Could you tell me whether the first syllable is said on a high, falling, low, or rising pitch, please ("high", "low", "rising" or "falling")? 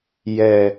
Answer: low